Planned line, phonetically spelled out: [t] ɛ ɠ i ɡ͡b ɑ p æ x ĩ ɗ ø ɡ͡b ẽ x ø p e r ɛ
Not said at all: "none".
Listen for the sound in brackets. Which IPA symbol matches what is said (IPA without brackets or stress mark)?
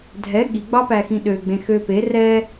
dʱ